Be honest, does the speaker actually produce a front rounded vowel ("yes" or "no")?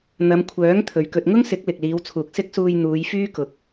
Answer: yes